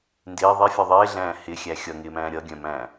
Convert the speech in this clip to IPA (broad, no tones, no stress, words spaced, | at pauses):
ndɪː ðˤefʲœ ðˤɪːɮæ̃ː hɪːxʲæ xʲʌŋɪːmæ̃ː ɾʲʌɡʲœ̃mæ̃ː